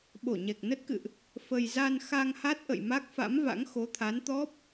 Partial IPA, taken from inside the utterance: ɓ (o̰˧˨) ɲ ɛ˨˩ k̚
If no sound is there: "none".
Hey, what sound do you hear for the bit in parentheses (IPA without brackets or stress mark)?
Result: o˧˩